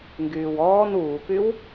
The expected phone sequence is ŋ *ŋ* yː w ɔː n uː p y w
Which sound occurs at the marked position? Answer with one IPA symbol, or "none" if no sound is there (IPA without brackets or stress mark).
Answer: ɡ